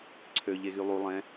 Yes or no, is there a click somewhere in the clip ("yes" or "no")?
yes